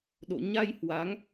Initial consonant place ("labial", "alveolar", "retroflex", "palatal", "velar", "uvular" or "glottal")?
alveolar